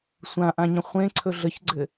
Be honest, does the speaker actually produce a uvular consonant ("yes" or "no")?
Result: yes